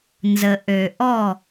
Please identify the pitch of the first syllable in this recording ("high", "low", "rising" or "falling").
low